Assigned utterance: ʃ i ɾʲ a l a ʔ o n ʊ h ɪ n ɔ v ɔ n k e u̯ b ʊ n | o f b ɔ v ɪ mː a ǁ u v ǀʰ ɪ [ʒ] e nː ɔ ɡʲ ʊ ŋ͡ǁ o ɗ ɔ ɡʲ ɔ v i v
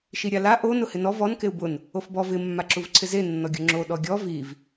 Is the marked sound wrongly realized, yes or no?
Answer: yes